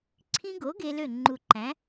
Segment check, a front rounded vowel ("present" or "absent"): present